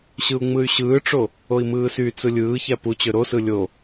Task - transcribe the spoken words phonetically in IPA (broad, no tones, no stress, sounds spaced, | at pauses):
ɕ ɯ u̯ ŋ͡m ɯ y̯ ɕ ɯː ʈ͡ʂ o | o i̯ m ɯː s y t͡s ɯ lʲ ɯː ç æ p u t͡ɕ ø ɾ o s ɯ lʲ o